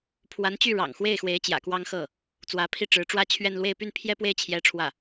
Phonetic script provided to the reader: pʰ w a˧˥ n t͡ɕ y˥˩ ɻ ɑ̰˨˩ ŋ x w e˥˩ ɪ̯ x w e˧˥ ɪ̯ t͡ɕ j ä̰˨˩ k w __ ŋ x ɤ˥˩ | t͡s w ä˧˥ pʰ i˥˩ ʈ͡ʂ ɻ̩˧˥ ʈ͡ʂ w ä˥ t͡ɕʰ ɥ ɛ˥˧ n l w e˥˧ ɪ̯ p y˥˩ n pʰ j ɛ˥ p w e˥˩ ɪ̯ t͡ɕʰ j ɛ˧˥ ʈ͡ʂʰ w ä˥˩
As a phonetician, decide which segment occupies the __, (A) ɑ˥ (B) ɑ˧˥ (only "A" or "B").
A